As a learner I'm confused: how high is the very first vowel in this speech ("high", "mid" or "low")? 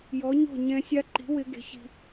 mid